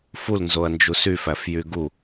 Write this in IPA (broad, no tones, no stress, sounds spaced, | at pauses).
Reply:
f u l n z o ɐ̯ n d͡ʒ u s y f æ f j y ɡ u